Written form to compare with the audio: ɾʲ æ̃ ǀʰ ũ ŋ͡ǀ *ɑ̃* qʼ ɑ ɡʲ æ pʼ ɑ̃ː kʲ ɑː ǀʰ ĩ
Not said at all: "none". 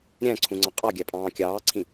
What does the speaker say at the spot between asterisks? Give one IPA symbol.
ɑ̃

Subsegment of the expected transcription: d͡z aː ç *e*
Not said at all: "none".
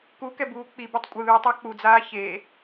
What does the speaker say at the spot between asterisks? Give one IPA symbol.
e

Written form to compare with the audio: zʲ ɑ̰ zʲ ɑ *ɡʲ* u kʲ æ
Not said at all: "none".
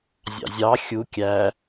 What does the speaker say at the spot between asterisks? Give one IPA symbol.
xʲ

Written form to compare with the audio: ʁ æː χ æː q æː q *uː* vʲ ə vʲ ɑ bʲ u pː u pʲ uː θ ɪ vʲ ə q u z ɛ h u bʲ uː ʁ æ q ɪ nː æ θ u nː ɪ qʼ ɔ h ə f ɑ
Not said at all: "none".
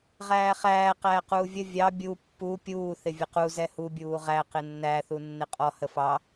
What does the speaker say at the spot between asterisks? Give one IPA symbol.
uː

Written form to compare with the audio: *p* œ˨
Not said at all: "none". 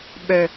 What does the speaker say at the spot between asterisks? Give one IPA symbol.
ɓ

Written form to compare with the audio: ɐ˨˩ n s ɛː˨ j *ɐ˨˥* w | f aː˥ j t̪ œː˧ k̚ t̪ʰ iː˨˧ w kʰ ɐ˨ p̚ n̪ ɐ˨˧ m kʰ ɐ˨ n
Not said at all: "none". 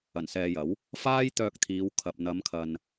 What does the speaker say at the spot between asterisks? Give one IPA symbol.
ɐ˨˥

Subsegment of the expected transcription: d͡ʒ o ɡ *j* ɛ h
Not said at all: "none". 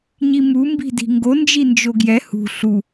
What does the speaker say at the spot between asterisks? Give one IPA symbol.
j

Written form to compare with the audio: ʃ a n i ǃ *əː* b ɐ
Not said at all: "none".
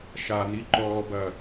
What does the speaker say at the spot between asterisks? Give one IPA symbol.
ɔː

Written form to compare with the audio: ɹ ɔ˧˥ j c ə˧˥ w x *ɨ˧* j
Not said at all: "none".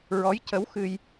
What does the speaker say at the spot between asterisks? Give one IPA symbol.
ɨ˧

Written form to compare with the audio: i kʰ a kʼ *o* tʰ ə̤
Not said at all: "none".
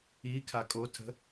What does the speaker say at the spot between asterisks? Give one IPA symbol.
o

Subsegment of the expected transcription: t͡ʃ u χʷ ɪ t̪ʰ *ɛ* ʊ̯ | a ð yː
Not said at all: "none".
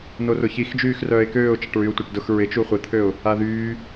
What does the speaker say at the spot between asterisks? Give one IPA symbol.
ø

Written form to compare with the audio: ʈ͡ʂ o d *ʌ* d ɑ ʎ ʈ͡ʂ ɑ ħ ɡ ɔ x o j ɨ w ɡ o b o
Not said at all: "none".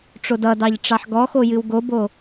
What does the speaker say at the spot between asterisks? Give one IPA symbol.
ʌ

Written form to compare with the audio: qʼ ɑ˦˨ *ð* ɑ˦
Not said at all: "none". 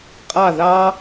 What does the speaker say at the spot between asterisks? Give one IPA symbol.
ð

